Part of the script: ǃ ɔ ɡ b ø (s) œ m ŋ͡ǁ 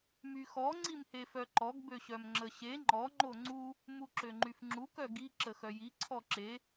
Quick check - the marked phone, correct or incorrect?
incorrect